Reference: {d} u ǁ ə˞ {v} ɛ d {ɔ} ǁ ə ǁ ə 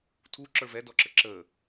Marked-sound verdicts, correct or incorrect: incorrect, correct, correct

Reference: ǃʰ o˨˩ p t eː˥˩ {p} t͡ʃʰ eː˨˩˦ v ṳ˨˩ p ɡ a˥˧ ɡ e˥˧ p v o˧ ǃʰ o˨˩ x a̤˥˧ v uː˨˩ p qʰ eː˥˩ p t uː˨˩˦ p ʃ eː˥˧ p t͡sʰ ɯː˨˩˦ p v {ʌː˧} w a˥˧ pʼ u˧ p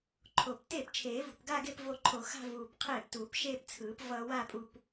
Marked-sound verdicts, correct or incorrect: correct, correct

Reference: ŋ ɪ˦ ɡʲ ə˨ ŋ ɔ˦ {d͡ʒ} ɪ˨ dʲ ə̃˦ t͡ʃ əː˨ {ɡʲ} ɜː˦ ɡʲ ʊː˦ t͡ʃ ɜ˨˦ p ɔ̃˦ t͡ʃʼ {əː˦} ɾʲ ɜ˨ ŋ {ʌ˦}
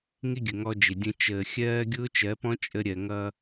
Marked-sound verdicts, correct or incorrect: correct, incorrect, incorrect, correct

